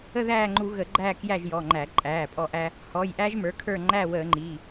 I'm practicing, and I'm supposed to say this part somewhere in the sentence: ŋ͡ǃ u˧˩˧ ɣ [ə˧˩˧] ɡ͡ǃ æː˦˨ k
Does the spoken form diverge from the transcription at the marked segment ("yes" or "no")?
no